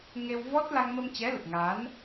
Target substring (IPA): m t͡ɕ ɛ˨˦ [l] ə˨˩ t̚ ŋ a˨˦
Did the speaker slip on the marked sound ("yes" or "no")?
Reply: no